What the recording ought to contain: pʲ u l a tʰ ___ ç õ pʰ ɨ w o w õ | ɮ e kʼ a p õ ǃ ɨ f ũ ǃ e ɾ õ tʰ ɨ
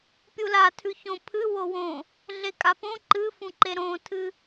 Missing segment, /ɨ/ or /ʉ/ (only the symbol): ʉ